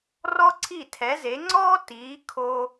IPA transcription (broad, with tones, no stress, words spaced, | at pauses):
rɔ˥ǀʰi˥˩tʰɛ˩˥ze˩˥ ŋ͡ǀɔː˥ tiː˩˥ kʰo˧